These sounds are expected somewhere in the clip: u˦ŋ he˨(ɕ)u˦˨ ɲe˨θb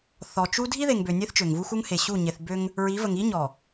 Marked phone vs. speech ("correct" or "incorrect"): correct